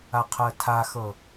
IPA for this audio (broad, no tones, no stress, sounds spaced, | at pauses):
a qʰ ɜ tʰ a x ɤ